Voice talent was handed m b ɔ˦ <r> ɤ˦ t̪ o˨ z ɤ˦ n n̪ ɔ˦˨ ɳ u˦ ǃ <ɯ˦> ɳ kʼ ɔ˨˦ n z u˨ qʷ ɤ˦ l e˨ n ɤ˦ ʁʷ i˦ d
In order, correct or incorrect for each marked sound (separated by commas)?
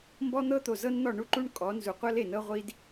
incorrect, incorrect